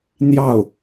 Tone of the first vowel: falling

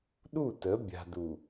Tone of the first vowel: falling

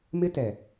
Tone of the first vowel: high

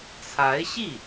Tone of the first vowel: rising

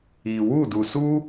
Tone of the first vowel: low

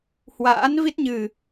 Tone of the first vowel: rising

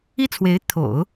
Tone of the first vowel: high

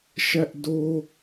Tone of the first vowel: high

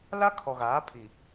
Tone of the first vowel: high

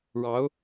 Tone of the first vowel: rising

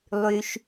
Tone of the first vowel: low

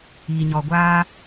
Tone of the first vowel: low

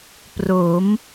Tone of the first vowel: rising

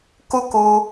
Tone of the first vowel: high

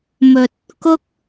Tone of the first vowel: low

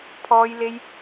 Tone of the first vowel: high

